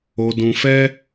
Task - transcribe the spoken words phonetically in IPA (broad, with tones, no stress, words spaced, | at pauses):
o˧dũ˧fɛ˦